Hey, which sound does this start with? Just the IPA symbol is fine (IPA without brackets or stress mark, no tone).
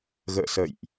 ɣ